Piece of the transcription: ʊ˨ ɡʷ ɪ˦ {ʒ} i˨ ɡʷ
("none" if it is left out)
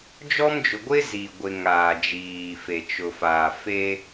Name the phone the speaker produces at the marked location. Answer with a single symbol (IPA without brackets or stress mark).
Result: z